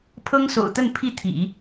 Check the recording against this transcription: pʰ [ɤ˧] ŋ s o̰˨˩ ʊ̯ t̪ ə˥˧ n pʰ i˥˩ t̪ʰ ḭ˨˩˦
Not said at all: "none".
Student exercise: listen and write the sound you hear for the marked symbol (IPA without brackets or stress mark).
ɤ˥